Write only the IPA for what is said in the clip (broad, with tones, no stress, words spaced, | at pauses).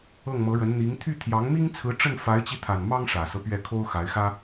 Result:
ɤ˥˩ŋmɤ˧˥ɻə˧˥n n̪i˧˥ŋ t̪ʰy˥˩ t̪ʰjɑ˧˥ŋmi˥ŋt͡sʰɹ̩˧˥ ʈ͡ʂə˥˩nfa˧˥ɪ̯t͡ɕi˧t̪ʰa˨˩n mɑ˥ŋʂä˨˩sɤ˦ pɥɛ˥˩kʰo˥ʊ̯ xa˧˥ɪ̯xä˥